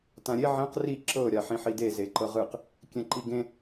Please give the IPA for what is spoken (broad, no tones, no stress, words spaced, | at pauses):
tãɾʲe ʕɛ̃q ri ǁɤ ɾʲaħĩħide zeǃɤʁɯq | kʲɛ̃ǃiɡẽ